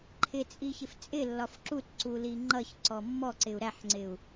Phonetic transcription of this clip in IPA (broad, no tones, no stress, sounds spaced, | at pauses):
ǃʰ ɪ t͡sʼ i ç ɪ f t͡sʼ ɪ lː ɒ f ǁ u t ǀ u l i ŋ͡ǃ ʌ ç ǀ ɔ mː ɔ ǀ ɪ u̯ ɾ æ ħ ŋ͡ǀ ɪ u̯